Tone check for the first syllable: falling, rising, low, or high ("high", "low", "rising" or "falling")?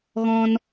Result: high